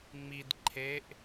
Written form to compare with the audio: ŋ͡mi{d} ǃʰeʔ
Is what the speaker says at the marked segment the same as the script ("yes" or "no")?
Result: yes